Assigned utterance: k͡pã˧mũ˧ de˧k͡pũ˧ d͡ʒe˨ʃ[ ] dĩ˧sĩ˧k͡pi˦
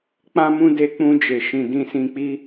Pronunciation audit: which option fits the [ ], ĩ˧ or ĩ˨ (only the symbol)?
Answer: ĩ˨